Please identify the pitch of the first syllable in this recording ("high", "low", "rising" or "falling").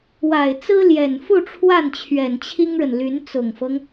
low